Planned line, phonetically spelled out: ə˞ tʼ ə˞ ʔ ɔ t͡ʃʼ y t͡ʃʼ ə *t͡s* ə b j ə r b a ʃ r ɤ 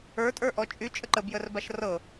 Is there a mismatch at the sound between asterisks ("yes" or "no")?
yes